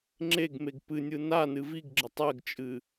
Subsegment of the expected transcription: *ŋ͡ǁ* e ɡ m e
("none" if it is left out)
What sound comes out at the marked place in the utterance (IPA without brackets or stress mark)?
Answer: ŋ͡ǁ